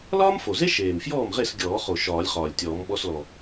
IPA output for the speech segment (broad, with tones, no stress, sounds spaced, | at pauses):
l ɒː˥ m f o˨˩ z e˥ ʃ eː˨˩ m f j ɔː˥˩ m ʁ e˥˩ s ɡʲ ɔː˨˩˦ χ o˨˩ ʃ ɒː˨˩˦ lʲ χ ɒː˨˩ lʲ tʲ ɔː˨˩˦ m ɓ ɔ˧ s l ɔ˨˩